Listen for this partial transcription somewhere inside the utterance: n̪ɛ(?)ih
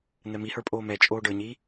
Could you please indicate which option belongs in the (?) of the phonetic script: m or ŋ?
m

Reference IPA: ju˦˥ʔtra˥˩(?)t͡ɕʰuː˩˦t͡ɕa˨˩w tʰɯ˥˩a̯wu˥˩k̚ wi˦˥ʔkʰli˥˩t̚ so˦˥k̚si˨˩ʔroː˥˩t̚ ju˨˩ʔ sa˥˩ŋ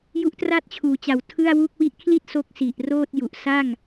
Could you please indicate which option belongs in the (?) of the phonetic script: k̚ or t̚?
t̚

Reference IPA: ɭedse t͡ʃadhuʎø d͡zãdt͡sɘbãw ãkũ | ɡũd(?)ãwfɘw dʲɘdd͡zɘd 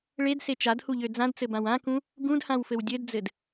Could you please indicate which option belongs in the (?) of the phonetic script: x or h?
h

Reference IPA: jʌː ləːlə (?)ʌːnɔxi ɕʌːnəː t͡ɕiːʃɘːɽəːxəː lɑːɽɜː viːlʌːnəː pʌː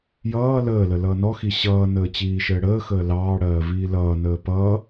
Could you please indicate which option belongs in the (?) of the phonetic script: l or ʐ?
l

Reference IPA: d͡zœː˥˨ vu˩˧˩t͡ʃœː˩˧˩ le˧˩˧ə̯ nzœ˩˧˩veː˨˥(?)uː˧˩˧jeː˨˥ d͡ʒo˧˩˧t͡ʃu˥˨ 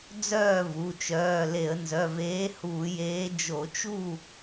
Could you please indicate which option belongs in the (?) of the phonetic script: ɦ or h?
h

